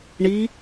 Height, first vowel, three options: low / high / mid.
high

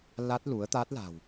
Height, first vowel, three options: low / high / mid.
low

